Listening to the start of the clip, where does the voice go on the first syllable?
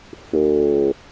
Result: low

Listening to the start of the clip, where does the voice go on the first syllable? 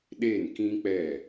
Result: falling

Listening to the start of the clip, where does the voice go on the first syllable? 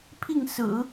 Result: falling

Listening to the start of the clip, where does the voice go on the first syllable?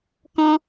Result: high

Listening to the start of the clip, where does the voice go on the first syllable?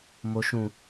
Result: low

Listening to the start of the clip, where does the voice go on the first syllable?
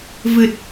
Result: low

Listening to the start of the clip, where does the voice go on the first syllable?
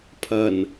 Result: low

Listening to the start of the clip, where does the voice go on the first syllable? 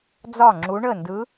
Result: falling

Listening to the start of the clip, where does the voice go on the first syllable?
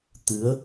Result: rising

